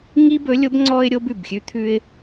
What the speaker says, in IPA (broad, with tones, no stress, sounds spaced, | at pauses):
ŋ i˥ b ɵ˧˥ lʲ o˧˥ b ŋ͡ǀ ɔ˧ ɪ̯ ɾʲ o˥ b ʉ˩ b xʲ ʉ˥ t̪ʰ ʉ˥ ɪ̯